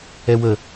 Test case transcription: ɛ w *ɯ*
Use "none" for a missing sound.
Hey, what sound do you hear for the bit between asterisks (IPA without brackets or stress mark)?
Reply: ə